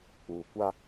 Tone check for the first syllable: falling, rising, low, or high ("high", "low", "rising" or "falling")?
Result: low